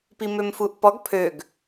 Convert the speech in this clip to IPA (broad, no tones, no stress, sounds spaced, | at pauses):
p i m ø m f u ʔ p ɔ ɡ pʰ ø ɡ